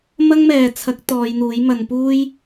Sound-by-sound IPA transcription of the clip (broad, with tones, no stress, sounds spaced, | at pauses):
m ɐ˥ ŋ m ɛː˨ t͡sʰ ɐ˨˥ k̚ t̪ ɔː˨˧ j n̪ uː˨˥ j m ɐ˨˧ n p uː˥ j